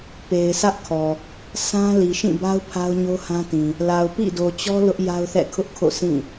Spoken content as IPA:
p e˨ ɪ̯ sʰ ä˦ ʔ kʰ ɔ˨ | sʰ ã˦ l i˨ ʃ ĩ˦˨ b a˦ ʊ̯ pʰ a˦ ʊ̯ ɲ o˦ h ã˦ t ĩ˨ | l a˨ ʊ̯ p ḭ˦˨ d o˨ t͡ɕ ɔ˦ l ʊ˦ ʔ j a˦ ʊ̯ θ ɛ̰˦˨ kʰ ʊ˦ ʔ kʰ o̰˦˨ sʰ ĩ˦˨

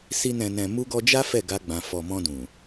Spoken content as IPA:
s i˧ n ɛ̃˨ n ɛ̃˨ m u˧ ɡ ɔ˧ d͡ʒ a˦ f ɛ˦˨ ɡ a˧ ɡ͡b ã˨ f ɔ˨ m ɔ̃˧ d ũ˨

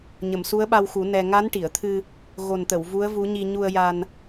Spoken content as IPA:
ɲ ə˨˩˨ m s u˧˥ ə̯ ɓ a˧ w x u˨˩˦ n ɛ˧ ŋ a˧˥ n ʈ i˨˩˨ ə̯ t̪ʰ ɨ˧ | ɣ o˨˩ n t̪ ə˨˩˨ w v u˧˥ ə̯ v u˧˥ ɲ i˧ ɲ u˧ ə̯ j a˧ n

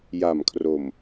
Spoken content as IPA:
j a˨˩ m kʰ r o˨˩ m

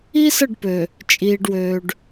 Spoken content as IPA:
i˦ s ə˦˨ ɖ p ø˨ | t͡ʃʼ iː˨ ɖ w øː˨ ɖ

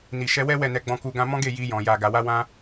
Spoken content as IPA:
n i˨ ʃ ɛ˧ w ɛ˦ w ɛ˦˨ n ɛ˧ ɡ͡b ɔ̃˧ k u˧ ɡ ã˧ m ɔ̃˦ ɡ e˦˨ j i˧ j ɔ̃˨ j a˨ ɡ a˨ w a˧ w ã˧

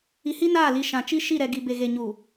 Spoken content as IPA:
i˨ h i˦ n aː˦˨ l i˨ ʃ ã˨ t͡ʃ i˦ ʃ i˦˨ ɾ ɛ˨ ɡ i˨ b e˨ ɣ e˨ ɲ u˨

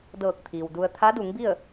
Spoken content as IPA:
d ɤː˧˩ k̚ t̪ʰ iː˩ w d u˧ ə̯ t̪ʰ a˧˥ d u˩˧ ŋ b i˥˨ ə̯

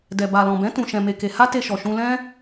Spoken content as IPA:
d ɛ˨ b a˨ l ɔ̃˨ b ɛ̃˨˦ t ũ˧ ʃ ɛ̃˧ m e˧ k e˧ h a˦ t e˧ ʃ ɔ˨ ʃ ũ˧ l ɛ̃˦

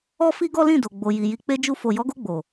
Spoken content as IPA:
ɔ˦ f i˦ ɡ ɔ˦ l ĩ˦˨ d o˨ ɡ͡b o˨ j i˨ j i˨ k͡p e˧ d͡ʒ u˧ f o˨ j ɔ˨˦ ɡ o˧ ɡ͡b o˨

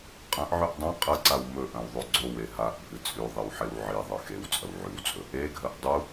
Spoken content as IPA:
qʼ ɐ̃ ʔ ʕ ʉ ʔ dˤ ɐ̃ qʼ ɐ ǀ a w m ɵ ʔ ɐ̃ w ðˤ ʉ ɡ͡ǀ o w e ɦ a ʔ bʱ ɨ t͡sʼ ʉ ðˤ i w ħ e w ʕ i ðˤ ɨ x e w t͡sʼ ɐ w ʕ ʉ w t͡sʼ ɵ | e ɡʱ ɐ ʔ dˤ u

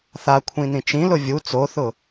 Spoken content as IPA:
θ a kʷʰ ĩ n ĩ t͡ʃ ĩ l ʊ vʲ u t͡s o θ ʊ

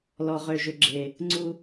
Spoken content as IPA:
l ɔ˨ ʁ ø˨ ʒ ʏ˨ ɡ͡ǁ e˨ | ŋ͡ǀ u˧

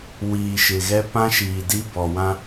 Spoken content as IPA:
w iː˨ ʃ ɪ˨ ɣ ɛ˦ p ã˦ ʃ iː˨ d i˦ b ɔ˨ w ã˦

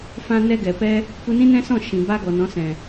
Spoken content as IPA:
f ã˧ n ɛ˧ ɡ ɛ˨ p ɛ˦ | p u˧ n ĩ˦ n ɛ̃˦ s ɔ̃˦˨ ʃ ĩ˨ b a˧ ɡ ɔ˨ n ɔ̃˨˦ s ɛ̃˨

